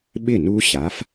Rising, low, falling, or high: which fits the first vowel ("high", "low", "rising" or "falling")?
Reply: falling